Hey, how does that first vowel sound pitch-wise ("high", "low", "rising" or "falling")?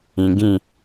low